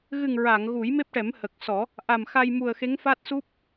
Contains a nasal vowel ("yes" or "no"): no